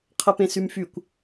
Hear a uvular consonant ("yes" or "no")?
yes